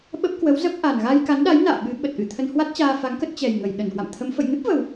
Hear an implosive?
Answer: yes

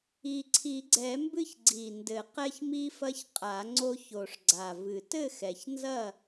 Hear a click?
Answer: yes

